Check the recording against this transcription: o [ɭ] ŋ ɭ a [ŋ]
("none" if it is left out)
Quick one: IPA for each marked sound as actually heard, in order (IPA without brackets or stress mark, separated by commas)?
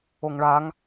none, ŋ